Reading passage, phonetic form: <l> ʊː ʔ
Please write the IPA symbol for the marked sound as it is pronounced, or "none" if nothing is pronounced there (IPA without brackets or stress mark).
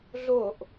ɮ